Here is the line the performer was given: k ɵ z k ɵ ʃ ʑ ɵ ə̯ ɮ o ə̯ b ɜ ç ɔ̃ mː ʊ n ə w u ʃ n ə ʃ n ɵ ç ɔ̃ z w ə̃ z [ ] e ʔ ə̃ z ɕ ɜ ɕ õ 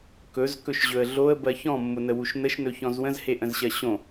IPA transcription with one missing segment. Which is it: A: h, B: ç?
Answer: A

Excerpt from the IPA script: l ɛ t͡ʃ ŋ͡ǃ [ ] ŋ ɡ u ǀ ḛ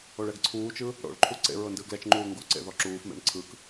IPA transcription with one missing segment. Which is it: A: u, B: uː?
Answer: B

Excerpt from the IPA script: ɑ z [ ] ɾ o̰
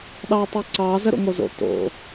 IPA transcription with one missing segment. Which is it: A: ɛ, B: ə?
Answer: B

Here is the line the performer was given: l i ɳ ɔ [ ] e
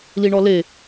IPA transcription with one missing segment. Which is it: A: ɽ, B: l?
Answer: B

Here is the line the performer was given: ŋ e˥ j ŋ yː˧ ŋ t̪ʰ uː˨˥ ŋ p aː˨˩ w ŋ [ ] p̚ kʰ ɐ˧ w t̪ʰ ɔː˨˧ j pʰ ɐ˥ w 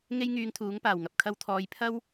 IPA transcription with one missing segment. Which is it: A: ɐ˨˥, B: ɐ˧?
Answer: B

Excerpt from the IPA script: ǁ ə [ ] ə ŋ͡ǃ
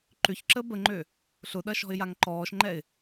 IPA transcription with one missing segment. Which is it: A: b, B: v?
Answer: A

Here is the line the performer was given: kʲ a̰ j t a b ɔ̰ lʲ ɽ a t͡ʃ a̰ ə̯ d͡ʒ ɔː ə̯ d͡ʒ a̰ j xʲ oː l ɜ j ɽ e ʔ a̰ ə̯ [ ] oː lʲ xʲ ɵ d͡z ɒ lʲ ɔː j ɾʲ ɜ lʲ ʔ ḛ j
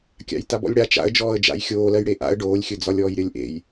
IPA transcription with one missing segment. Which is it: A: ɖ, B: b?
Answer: A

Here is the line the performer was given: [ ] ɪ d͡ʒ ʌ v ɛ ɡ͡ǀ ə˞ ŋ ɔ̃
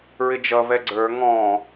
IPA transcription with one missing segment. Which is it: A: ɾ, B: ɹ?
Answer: B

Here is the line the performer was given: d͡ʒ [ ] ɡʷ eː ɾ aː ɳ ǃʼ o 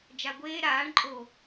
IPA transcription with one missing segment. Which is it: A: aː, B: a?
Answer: B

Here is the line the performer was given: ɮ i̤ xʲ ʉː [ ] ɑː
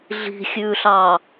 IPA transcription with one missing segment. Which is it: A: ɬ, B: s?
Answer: A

